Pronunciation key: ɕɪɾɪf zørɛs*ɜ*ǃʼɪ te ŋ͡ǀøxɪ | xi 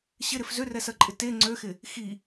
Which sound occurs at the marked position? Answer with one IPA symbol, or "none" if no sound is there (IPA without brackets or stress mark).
ɜ